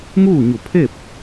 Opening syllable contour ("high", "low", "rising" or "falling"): falling